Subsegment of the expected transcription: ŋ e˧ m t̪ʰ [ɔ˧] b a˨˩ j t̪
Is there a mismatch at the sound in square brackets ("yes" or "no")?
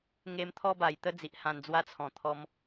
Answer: no